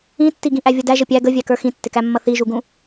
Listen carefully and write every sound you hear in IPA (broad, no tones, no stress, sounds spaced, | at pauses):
ĩ tː i ɡ ĩ ʔ æ vʲ ʌ d æ ʒ ə pʲ æ ɡ ə vʲ æ k ə˞ x ĩ tː ɪ k æ mː ʌ θ i ʒ u ɡ ũ